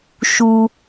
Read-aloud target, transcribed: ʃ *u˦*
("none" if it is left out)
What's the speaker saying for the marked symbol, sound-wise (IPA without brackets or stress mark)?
u˦